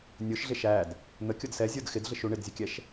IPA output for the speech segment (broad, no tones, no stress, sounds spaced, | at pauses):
nʲ ʊ ʃ ɮ ɪ ʃ æ d | n̪ ə kʲ ʊ d s ɛ zʲ ə˞ d x ɪ d ɮ ɪ ʃ u ɳ ɪ d zʲ ə kʲ ɛ ʃ